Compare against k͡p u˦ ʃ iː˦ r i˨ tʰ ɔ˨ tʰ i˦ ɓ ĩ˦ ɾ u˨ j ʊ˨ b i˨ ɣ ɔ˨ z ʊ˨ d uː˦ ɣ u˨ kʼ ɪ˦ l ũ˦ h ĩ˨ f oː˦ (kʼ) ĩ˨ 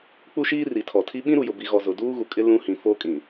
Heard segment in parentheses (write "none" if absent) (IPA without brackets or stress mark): kʼ